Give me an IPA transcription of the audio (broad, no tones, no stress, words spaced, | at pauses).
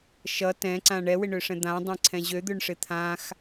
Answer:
ʃʌ tɛ̃ǀã ɳɛwɪɳøʂɛ̃ d̪ãdˤɛ̃ǀʰɛ̃ ʑød̪øɳʂɪ t̪ʰãx